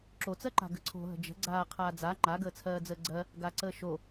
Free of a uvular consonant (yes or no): no